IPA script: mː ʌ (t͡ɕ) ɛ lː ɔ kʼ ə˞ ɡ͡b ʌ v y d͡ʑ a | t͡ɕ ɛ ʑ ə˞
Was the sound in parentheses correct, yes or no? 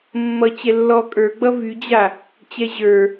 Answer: yes